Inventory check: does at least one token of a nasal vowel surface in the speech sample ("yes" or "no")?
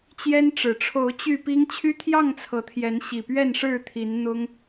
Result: no